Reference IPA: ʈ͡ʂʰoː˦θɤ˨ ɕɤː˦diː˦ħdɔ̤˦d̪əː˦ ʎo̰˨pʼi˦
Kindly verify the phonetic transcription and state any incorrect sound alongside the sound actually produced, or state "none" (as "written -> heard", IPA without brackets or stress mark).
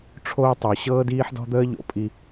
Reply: θ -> tˤ